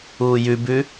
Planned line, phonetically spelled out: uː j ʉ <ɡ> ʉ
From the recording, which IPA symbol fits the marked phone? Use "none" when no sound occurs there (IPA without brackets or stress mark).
b